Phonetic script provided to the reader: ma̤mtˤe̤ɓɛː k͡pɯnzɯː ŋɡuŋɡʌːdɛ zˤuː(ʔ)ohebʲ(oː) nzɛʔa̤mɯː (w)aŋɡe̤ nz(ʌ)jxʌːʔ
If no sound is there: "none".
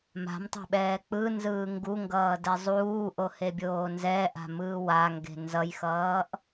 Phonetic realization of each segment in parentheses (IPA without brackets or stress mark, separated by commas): ʔ, oː, w, ʌ